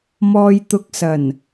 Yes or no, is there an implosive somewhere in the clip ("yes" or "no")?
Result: no